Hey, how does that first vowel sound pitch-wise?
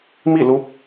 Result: falling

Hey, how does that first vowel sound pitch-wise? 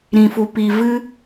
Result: low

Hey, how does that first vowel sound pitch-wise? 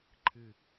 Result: low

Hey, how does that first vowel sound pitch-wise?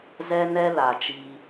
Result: high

